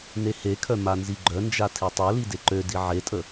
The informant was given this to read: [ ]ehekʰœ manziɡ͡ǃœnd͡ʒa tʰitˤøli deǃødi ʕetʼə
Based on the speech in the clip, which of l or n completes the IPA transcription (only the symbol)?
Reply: n